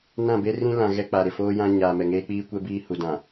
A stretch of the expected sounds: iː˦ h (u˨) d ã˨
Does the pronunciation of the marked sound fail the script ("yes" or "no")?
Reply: no